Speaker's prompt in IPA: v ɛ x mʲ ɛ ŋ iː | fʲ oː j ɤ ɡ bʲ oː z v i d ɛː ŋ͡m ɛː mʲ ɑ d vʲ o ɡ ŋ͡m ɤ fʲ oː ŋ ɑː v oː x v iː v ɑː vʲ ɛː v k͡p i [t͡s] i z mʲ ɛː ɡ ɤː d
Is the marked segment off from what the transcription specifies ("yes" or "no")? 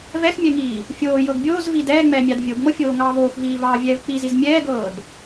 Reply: yes